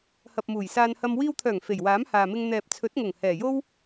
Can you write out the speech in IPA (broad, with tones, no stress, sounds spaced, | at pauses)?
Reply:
h ɐ˨ p̚ m uː˨˩ j s aː˧ n h ɐ˧ m w iː˧ w t̪ʰ œː˨˩ ŋ f e˨˩ j w aː˨˥ m h aː˨ m ɪ˧ ŋ n̪ ɛː˨ p̚ t͡sʰ ɵ˨˥ t̚ ŋ ʊ˨˩ ŋ h ɛː˨˩ j o˥ w